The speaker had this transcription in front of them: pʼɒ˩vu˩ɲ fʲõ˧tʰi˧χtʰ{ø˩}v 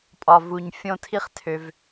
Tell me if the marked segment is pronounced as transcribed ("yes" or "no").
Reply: yes